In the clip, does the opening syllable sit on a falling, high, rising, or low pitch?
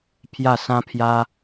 falling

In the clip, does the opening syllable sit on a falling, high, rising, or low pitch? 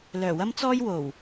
low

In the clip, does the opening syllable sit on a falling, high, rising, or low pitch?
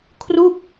falling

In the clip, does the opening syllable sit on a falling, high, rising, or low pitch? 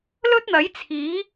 high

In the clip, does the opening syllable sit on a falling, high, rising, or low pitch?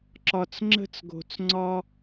low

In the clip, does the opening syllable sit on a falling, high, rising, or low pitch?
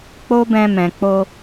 high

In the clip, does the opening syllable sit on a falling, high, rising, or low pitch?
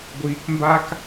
low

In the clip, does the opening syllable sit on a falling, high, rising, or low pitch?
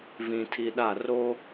low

